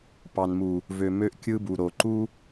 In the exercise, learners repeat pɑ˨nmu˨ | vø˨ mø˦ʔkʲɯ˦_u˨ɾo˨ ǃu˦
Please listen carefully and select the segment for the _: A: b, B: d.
A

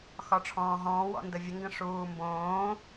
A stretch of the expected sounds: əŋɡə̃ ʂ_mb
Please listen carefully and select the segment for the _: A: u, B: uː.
B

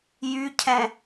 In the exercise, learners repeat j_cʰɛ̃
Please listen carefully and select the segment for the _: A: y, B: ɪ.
A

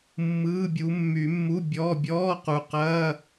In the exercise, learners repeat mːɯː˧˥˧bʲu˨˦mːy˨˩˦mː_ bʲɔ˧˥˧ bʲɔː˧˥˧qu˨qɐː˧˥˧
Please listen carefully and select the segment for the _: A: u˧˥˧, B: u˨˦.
A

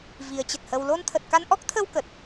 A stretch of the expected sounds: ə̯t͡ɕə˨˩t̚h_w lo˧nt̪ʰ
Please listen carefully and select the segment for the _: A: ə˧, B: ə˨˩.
A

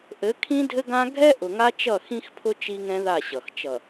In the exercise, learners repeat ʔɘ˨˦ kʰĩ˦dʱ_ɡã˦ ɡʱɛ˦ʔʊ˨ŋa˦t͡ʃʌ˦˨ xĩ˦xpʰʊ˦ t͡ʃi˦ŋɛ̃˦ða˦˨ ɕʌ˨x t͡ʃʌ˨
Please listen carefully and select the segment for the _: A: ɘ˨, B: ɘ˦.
B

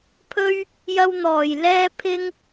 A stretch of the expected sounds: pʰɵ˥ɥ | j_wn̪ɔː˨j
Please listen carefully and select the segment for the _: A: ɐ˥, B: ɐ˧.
B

